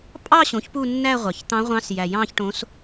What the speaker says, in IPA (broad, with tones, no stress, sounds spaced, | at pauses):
pʼ ɑ˥˧ ɕ õ˩˥ ç p u˥˧ nː æ˥˧ ʁʷ ɑ˨˩ ç t̪ ɑ̃˧˥ ʁʷ ɑ̃˧˥ s j æ˨˩ j ɑ̃˥˧ ç ʈ õ˧˥ s